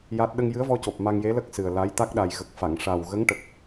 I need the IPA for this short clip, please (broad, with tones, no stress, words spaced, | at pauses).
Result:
ja˦˥t̚ ɗə˧ŋjɨ˧˥ə̯vɔ˧co˨˩p̚ ma˧ŋje˧˥lə˦˥k̚ sɨ˨˩ə̯la˧˥j t̪a˦˥k̚ɗa˨˩jɣə˨˩k̚ fa˨˩˨ŋʂa˨˩w ɣə˧˥ŋʈə˨˩k̚